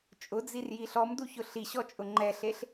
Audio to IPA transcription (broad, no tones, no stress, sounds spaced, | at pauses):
t͡ʃʼ ʊ d͡z i r j i ɬ ɔ m d u ç ʊ ɬ i ɕ ɔ t͡ʃʼ ʊ ŋ͡ǃ ɛ ɬ e ɬ